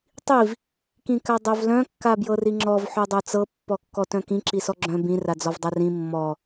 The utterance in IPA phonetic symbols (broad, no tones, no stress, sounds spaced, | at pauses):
tˤ i v | k ĩ k a dˤ œ v l œ̃ kː a b j ɤ r i ŋ͡ǁ ɔ v ħ œ dˤ œ t͡s ɤ pː ɔ kː ɔ t œ̃ k ĩ ǁ i s ɔ ɡ͡ǁ œ̃ b ĩ r a d͡z ɔ v dˤ a r ĩ mː ɔ